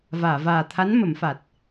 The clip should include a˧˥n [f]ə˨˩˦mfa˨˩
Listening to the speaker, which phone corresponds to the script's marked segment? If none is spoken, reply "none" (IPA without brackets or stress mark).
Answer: m